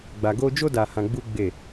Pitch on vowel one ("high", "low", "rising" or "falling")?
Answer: low